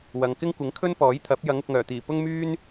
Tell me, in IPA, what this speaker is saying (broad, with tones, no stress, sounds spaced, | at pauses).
w ɐ˨ ŋ k ɪ˥ ŋ kʷ ɪ˨˥ ŋ kʰ ɵ˥ n p ɔː˨˥ j t̪ʰ ɐ˨˥ p̚ j ɐ˨˥ ŋ ʊ˨ k̚ ŋ œː˨˩ t̪ iː˨˩ p ʊ˥ ŋ m yː˥ n